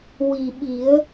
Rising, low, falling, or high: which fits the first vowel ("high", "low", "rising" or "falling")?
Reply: low